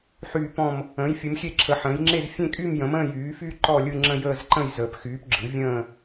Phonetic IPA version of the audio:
ħyː˥˧pɔ̃˥˧m | ə̃ː˨˥jfʲɯ˨˥mxʲe˥˧ǁʰə˨˥ ħə̃ː˨˥jŋ͡ǁe˥˧z fʲẽ˥˧kʼy˥˧m jə̃˨˥mə̃ː˥˧ jyː˨˥fy˥˧ ǃɔ˥˧lʲɯ˥˧ŋ͡ǁə̃˥˧ jəː˥˧zǃə̃˥˧j zəː˨˥pxyː˨˥pɡ͡ǁɯ˨˥ vʲə̃ː˥˧

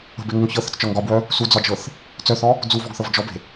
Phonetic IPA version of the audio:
ə̤beŋuŋ çɤθə̤t͡st͡ʃɒŋ ɡɒbwœ | sud͡zɒd͡ʒɤθ | t͡sœθɔ | d͡zuvɔɡθɤv d͡ʒɔbe̤

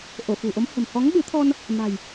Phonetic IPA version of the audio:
ʔo˧˩fṳ˨˩ʔo˨˦m hə̤˨˩mhɔ˨˦ŋɓɨ˨˦t̪ʰɔ˧n | ma̤˨˩j

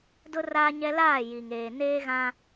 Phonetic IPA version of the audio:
dʊ˦ raː˦ɲɛ˦ laː˦˨ji˨ŋeː˨ neː˦ɣã˦

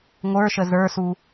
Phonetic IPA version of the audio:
ŋʷə˞ʃə zə˞su

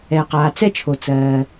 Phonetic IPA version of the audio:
ɛː˩qaː˩ t͡sɛ˥t͡ʃʰo˩ t͡sɜː˩

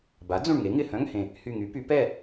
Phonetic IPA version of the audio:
ba˩˥d͡zũ˧˩ɳ ŋe˩˥ŋɪ˧˩hœ̃˧˥˧ŋhẽ˧˩ | hy˧˩ŋy˩˥py˩˥ pɛ˥˨

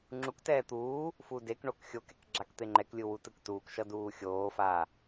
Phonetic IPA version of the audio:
ŋ͡ǁuktɛː t̪uː | fudekɳok xʲokɛk ɡ͡ǁakt̪eŋ͡ǃɛklʲɯ wutɯktuːkʃʌ duːxʲoːfa

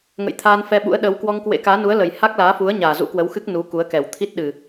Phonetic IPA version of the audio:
ŋə̰˧˨jt̪ʰaː˧n fɛ˧ɓṵ˧˥ə̯ɗəː˨˦w kwɔ˧ŋkwḛ˧˥kaː˨˦nu˨˦ə̯ lə˨˩j ha˦˥k̚laː˨˦fu˨˦ə̯ ɲaː˨˩zṵ˧˥kwə˨˦wxɨ˦˥k̚ nu˨˦ku˨˦ə̯kɛ˨˩w t̪ʰi˦˥t̚ɗɨ˨˩

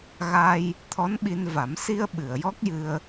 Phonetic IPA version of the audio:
ɣa˧j | t̪ʰɔ˧˥nɓi˧nva˨˩˦m si˧ə̯ ɓɨ˨˩˨ə̯jɔ˦˥k̚jɨ˧ə̯

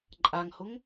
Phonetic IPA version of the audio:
ǃʼaŋhʊŋ

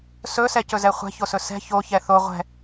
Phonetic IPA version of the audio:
sɵsɛcɵzɛ χʷɛ̤çosɵ sɛ̤ çoçɛ θo ʁʷɛ̤

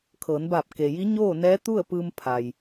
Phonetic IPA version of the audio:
kʰɤː˩˧nbaː˧˩p̚ ke˩ji˧˥ɲoː˥˨ nɛː˧˥t̪u˥˨ə̯pɯː˧m pʰa˩j

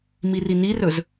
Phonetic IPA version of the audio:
mirinirɵz

